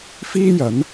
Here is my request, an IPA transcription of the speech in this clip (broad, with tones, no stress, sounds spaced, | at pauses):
f iː˥ j ɐ˨˥ n